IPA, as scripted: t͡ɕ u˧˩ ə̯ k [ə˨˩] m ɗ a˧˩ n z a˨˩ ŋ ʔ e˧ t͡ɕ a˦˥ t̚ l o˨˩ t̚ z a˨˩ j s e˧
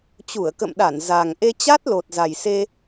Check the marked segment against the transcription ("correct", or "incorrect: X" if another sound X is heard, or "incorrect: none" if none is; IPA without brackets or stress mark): incorrect: ə̰˧˨